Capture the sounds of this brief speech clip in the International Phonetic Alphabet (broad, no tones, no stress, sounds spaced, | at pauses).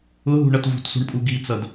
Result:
ʊ ɦ ṳ ɳ ʌ t v ṳ t s ṳ ɳ pʼ u ɡ i t͡s ʌ d